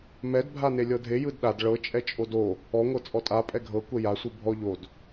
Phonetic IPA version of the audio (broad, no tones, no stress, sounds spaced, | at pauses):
m ɛ d bʱ a n e lʲ ɤ dʱ e j ɯ d ɗ a d ɭ ɤ t͡ʃʼ ɛ t͡ʃʼ o d o | ɔ ŋʷ ɤ t͡sʼ ɔ tʼ a pʼ ɛ ɡʱ ɤ kʷ ɛ j a sʷ ɯ bʱ ɔ ʎ o d